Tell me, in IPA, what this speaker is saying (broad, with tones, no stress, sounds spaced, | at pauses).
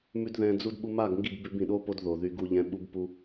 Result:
m ʉ˦ d ð ɛ̃˧ d͡z u˦ d ɓ u˧ m a˦˨ ɡ ŋ ɡ i˦˨ ɡ b ʉ˧ b ĩ˨ ɗ o˦ p o˧ d ð o˨ ð y˧ ɡ u˧ ʎ ɛ̃˧ ɓ u˧ b p u˧